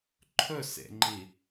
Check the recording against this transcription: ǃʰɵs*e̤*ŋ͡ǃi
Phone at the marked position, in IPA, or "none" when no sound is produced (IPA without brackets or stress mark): ḛ